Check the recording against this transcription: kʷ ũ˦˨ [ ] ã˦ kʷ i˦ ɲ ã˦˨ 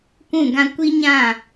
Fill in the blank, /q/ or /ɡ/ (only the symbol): ɡ